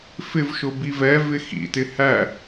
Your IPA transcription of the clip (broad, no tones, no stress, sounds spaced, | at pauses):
f ɪ v ʃ ʊ b i v ɛ v ɪ x ḭ t ɪ h æ